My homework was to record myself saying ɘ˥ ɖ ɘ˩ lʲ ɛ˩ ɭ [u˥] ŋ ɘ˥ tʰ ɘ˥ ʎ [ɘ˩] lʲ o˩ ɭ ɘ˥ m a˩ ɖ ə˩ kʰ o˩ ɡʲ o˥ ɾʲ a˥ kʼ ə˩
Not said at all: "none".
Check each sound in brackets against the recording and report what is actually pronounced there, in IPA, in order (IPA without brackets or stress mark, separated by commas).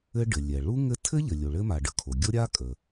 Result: u˥, ɘ˩